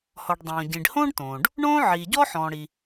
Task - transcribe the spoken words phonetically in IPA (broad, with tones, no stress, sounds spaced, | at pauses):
h ɔ˩ ɖ dˤ õː˩ ɟ ĩ˩ ɖ h õː˥ ɖ t õː˩ ɖ | ɳ õː˥ ʕ iː˩ ɟ ɔ˥ ħ ɔ̃ː˩ ɽ i˩